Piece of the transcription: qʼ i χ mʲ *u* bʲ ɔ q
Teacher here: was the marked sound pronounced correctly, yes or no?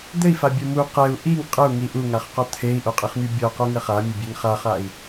yes